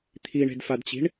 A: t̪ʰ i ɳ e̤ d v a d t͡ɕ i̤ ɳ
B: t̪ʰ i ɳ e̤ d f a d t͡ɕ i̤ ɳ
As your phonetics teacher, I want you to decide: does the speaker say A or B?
B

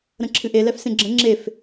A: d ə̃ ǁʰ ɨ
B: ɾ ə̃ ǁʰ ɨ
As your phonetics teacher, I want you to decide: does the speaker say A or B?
B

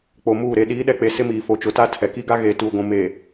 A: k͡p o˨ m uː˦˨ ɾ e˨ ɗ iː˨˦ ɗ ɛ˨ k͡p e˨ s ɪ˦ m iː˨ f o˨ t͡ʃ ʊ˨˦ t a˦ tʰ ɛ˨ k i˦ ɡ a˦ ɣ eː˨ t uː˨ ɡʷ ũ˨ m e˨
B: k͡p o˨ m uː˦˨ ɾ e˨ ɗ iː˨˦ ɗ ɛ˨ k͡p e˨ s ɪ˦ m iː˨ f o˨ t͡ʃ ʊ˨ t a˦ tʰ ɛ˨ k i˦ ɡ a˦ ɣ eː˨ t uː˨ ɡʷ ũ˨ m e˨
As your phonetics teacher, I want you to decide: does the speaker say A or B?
A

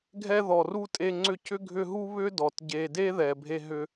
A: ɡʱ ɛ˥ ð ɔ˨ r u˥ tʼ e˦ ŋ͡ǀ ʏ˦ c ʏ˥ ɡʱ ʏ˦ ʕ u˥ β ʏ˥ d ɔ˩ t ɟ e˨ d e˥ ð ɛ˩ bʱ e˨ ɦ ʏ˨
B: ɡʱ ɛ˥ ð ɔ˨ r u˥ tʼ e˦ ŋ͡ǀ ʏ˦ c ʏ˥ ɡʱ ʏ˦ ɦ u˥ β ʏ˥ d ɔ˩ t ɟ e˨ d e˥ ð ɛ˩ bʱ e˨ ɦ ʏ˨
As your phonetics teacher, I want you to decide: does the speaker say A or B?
B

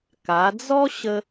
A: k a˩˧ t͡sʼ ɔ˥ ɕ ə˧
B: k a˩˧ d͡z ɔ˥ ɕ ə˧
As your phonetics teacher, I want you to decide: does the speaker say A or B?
B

